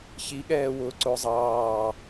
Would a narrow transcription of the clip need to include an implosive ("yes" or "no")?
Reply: yes